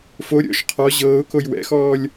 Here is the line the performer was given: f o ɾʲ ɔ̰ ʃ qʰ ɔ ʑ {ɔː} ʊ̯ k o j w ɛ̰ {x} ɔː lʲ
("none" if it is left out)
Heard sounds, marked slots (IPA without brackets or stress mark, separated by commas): ɤː, x